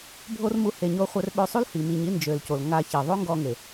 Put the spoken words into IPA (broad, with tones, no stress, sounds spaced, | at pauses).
bʱ o˦ r m u˧ h e˨ ɲ o˧ χʷ œ˧ r ɓ ø˧ sˤ u˦ l h i˨ m i˧ ɲ i˦ n d͡ʒ ø˨ l c o˨ l ŋ a˧ ç e˨ ðˤ o˦ ŋ ɡ ɔ˧ ŋ e˨